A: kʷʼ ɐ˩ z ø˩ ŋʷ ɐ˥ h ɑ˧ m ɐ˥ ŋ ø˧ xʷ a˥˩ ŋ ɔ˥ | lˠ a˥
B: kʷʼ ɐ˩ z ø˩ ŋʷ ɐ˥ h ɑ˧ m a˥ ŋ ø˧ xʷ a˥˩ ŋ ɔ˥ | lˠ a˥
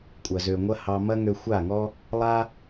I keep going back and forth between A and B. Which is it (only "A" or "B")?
A